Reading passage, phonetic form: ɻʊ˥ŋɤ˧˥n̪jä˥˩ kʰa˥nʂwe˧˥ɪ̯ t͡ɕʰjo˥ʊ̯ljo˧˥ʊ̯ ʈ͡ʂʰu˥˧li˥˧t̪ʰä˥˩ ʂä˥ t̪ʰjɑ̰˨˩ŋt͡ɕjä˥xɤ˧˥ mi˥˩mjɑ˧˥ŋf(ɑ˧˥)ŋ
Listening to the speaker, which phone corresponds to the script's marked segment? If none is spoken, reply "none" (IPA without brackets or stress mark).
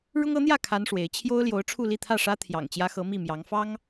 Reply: ɑ˥